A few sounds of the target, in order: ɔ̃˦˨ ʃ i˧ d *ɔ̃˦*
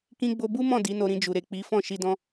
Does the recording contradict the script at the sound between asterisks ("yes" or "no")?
no